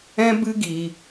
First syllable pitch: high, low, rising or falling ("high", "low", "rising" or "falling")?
high